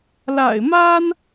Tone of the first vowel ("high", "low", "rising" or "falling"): low